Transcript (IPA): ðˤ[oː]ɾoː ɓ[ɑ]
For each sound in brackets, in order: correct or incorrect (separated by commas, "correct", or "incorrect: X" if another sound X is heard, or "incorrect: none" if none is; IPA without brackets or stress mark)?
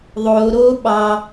correct, correct